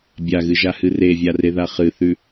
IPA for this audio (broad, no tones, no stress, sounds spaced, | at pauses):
bʲ a ɣ ɨ ʒ a h ɨ r e vʲ a r e ð a χ ɨ θ ʉ